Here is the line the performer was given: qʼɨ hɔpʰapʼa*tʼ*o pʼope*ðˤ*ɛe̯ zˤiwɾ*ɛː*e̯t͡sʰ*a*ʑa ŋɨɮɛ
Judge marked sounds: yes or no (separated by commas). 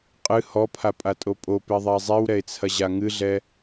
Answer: yes, yes, no, no